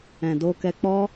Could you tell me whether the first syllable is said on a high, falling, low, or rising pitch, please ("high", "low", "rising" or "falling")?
low